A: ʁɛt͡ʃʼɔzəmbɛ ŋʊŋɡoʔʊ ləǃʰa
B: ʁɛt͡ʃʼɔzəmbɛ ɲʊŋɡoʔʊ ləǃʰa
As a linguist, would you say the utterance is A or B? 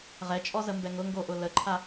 A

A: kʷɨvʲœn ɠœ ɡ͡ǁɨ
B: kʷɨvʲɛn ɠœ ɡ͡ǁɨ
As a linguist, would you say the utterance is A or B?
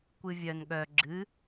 A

